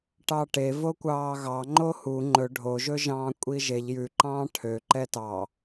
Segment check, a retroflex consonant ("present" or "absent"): present